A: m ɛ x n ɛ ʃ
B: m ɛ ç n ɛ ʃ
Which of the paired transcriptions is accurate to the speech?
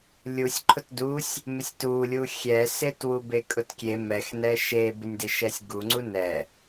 A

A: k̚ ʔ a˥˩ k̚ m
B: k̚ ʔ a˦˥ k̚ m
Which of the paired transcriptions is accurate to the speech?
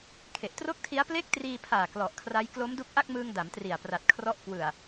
A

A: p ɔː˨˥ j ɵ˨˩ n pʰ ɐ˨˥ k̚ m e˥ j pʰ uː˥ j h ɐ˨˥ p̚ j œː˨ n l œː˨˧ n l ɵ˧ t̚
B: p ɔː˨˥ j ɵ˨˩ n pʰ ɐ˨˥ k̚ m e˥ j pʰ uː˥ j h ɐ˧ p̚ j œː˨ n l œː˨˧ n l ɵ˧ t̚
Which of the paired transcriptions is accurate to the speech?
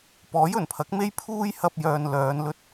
B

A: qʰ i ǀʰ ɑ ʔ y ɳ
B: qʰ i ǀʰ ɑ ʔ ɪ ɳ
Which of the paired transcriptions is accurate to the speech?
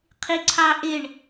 B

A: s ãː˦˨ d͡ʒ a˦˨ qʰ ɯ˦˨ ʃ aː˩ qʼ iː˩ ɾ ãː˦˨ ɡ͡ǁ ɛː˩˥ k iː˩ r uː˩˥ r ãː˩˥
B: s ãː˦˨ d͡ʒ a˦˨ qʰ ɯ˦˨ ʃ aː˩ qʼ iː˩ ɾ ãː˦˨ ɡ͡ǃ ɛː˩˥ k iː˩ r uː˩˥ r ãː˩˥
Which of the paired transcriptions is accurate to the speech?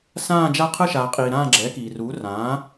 A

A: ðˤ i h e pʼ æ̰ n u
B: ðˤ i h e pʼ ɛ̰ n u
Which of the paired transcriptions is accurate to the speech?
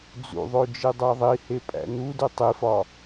A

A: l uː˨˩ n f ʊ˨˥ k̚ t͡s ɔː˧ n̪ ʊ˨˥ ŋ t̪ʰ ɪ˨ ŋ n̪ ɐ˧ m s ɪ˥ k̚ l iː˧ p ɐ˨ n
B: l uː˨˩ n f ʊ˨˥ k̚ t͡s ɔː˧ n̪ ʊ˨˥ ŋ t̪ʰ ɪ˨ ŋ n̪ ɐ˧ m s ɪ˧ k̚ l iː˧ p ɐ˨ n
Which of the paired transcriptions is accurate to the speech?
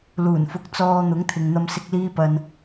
B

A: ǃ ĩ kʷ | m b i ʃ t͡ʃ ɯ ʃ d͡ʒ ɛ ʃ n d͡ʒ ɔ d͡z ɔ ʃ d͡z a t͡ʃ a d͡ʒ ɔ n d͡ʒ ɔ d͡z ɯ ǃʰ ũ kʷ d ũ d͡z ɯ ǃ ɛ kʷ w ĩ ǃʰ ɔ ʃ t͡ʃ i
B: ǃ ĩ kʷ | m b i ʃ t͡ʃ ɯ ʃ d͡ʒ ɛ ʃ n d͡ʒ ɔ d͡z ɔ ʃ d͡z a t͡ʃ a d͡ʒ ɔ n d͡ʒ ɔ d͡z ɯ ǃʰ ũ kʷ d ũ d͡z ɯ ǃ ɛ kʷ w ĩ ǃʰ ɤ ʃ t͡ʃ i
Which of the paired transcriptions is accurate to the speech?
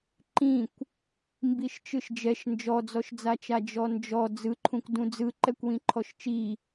A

